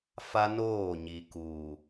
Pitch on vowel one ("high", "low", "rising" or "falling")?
high